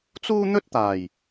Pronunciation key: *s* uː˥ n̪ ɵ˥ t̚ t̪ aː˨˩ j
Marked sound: incorrect: t͡s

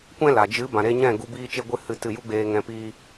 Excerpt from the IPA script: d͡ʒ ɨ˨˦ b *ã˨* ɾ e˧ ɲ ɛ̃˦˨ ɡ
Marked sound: correct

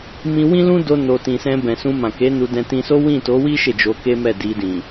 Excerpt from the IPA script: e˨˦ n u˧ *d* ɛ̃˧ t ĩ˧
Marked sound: correct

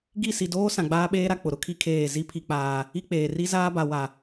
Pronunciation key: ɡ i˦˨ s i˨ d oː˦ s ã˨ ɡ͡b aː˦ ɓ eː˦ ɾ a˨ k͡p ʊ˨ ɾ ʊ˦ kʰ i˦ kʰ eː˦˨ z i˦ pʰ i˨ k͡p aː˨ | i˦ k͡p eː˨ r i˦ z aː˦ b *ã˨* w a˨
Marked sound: incorrect: a˨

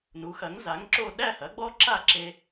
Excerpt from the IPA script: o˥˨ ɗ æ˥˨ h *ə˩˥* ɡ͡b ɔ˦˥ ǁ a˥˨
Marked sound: incorrect: ɐ˩˥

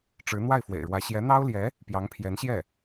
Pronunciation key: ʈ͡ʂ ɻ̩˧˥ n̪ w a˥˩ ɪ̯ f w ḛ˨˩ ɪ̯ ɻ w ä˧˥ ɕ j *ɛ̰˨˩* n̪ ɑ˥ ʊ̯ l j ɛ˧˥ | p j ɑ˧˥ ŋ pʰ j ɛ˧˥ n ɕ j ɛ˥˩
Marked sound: incorrect: ɛ˧˥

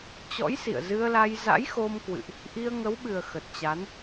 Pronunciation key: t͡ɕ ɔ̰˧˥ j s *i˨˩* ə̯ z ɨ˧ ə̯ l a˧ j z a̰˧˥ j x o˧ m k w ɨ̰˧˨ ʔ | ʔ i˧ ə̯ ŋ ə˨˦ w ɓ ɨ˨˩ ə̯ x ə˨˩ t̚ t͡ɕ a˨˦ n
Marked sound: incorrect: ḭ˧˨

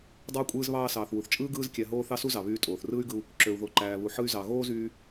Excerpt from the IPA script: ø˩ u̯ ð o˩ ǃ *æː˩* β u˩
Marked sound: correct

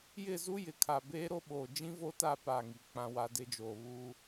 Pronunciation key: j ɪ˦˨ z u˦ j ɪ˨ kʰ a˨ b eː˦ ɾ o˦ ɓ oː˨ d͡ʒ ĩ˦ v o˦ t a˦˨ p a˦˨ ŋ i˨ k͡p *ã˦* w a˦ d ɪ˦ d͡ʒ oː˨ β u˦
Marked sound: correct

